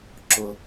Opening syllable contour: low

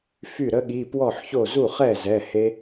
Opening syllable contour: falling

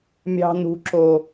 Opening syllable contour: high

